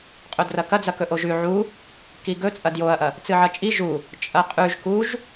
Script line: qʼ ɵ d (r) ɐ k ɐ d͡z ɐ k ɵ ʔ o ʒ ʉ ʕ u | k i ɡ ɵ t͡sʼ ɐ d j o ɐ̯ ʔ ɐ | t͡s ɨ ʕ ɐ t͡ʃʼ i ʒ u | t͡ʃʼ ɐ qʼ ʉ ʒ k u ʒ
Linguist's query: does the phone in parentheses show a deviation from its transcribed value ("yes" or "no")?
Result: no